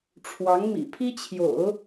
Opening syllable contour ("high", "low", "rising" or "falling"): rising